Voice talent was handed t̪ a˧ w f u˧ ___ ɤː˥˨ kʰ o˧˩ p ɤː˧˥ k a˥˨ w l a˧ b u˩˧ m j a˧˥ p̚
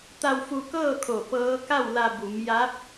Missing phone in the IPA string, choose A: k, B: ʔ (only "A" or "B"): A